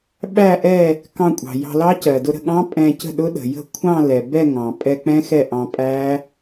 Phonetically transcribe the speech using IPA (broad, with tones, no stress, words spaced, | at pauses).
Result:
ɓæ˥˧ʔɛ˥˧ | kɑ̃˧kʷʼɑ̤˩ jɑ̤˧lɑ˦˥cɜ˩ dʊ˧ɾə̤˥˩ɠɑ̃˦˥ pʼɛ̃˧cə̤˥˩ɗʊ˦˥ ɗə̤˩jə̤˥˩kʷʰɑ̃˥˧ lɛ˩ bɛ˥˧ ŋɑ̃˩ pʼɛ˧k͡pɛ̃˦˥ xɛ˥˩ʔɑ̃˧ pʼæ˦˥